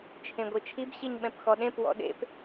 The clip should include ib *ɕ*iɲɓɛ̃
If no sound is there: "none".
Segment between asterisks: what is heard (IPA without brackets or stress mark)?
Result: ɕ